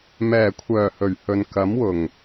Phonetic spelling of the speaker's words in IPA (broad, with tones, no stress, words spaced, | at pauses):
mɛː˨˩kʷʰœː˨˩ hɵ˨˩ɥhɵ˨n kɐ˨˥mwʊ˨˩ŋ